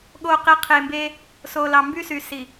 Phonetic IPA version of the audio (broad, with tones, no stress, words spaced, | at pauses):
ɠo˨qe˨ qʰe˨mbe˦ | so˨lɑ˨ mby˦sy˨ si˨